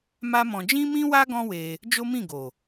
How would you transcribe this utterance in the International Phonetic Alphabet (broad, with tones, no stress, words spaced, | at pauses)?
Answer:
ma˦mɔ̃˧ d͡ʒĩ˦mĩ˦wa˦ ɡɔ̃˦we˧ | d͡ʒo˦mĩ˦˨ɡo˨